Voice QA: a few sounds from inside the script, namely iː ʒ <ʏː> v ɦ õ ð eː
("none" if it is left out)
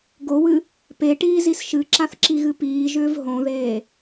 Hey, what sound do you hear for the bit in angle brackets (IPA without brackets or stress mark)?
ʏː